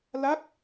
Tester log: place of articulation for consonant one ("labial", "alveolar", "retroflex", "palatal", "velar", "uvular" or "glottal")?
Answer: alveolar